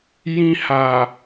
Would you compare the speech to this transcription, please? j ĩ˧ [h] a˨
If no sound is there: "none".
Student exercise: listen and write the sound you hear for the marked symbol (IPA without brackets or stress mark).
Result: h